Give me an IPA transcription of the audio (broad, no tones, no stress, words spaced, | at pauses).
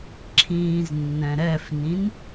ǁʰĩːznːɛ̃ɾɛfnĩn